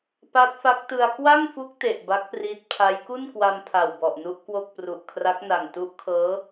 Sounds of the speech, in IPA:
pa˦˥t̚fa˦˥k̚tɯ˧a̯ kwa˥˩ŋfu˦˥k̚ te˨˩ʔba˦˥k̚priː˦˥t̚ pʰa˦˥j ku˥˩nkwa˧mpʰa˨˩wbɔ˨˩ʔ nu˦˥ʔkwo˥˩k̚ pru˨˩ʔkʰra˦˥k̚na˨˩ŋ tu˦˥ʔkʰɤː˦˥

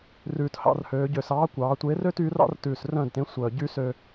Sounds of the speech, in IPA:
rʉː˨˩thɑ̰˥˨r høː˩˧ɟø˨˩sɑː˨˥kʷɑː˩˧ tʷe˨˥rø˥t y˨˥rɑ̰˥rtʉː˨˩s rœ̃ː˥˨dtẽ˨˥sʷœː˨˩ ɟy˥ sø˧

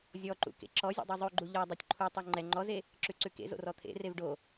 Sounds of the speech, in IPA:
zʲɔǃṵ kḛǁɔzʲṵ dˤʉzˤʉɡ͡ǃu ʎɔ dˤɛtʲǃʰutˤu ŋ͡ǃɛ ŋ͡ǃɔze | ǁʉǀʉkḛzo̰ rɔt̪ʰḛrev ɖo

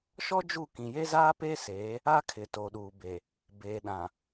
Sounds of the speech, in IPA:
ʃɔ˦d͡ʒu˦˨ kĩ˨je˦zaː˦peː˦ seː˨˦ | a˦kʰɪ˨ to˨ ɗuː˨be˨ | beː˨ɗã˨

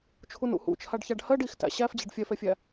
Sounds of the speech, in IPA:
t͡ʃʰunṵhṵt͡ʃʰaɖ çaɖhɜɖ ixtæ̰ ɕæfd͡ʑeɖ fʲɛfɛfʲæ

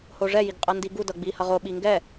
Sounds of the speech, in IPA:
hoʐɛ jiɡqʼʌndiɡu dʌɡ͡bihʌʁo ɓiŋɡɛ

